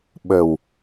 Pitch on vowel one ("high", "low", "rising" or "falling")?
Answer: low